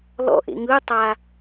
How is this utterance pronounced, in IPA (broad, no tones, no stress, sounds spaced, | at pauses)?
l ɔ̰ ʔ ḛ ŋ ɯ tˤ a